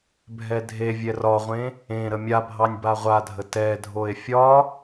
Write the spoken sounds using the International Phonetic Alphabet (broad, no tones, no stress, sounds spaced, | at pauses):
bʱ ɛ dʱ e vʲ ɛ r ɒ ʁʷ ẽ | ẽ ɾ ə mʲ a bʱ ɑ nʲ b a ʁʷ a dʱ ə t ɛ dʱ o e̯ fʲ ɒ